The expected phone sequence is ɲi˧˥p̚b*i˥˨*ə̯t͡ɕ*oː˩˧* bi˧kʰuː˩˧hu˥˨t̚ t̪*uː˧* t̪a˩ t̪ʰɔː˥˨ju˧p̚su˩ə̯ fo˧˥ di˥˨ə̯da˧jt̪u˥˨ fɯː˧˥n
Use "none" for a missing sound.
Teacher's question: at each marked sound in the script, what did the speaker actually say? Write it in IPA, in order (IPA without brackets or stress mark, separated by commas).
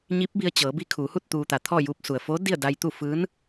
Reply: i˧, ɤː˩˧, uː˧